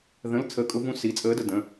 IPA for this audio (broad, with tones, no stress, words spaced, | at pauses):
ðə̃˧˥˧l t͡sʰə˧˥kʼʊ˧˥vũ˧˥ si˩˧˩t͡sʼəː˧˥də˩ də̃˩˧˩